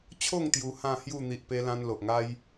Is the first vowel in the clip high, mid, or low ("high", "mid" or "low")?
mid